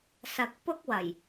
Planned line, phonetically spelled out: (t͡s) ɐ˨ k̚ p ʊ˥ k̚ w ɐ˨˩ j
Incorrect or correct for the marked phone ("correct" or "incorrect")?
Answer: incorrect